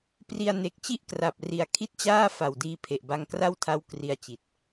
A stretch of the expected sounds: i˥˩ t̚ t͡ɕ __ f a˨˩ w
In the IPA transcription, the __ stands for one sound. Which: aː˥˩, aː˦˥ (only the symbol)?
aː˥˩